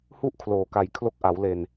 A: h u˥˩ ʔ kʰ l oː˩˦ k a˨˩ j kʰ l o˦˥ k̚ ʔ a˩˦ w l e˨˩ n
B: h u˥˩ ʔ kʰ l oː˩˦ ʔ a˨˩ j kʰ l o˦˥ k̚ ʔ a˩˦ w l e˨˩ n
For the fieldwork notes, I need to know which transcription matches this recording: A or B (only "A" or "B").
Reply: A